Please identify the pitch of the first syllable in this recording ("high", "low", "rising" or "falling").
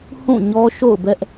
falling